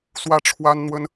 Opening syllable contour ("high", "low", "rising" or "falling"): falling